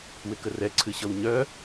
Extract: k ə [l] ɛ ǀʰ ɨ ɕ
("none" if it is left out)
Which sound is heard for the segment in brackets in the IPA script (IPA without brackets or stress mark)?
r